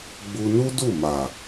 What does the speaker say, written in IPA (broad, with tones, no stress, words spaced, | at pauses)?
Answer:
ɡ͡bu˧nu˦ du˦˨ma˨